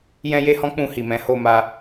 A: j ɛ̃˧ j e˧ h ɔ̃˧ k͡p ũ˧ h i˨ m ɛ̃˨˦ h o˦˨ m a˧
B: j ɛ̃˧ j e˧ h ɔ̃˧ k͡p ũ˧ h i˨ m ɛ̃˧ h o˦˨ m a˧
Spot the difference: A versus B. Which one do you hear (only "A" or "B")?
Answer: A